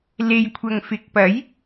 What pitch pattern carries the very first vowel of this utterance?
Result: low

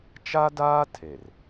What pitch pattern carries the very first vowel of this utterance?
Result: high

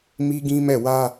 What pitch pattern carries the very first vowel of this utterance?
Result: high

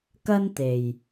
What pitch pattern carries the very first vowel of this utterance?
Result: high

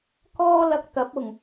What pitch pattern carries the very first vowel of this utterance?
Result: high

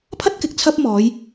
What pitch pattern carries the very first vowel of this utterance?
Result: high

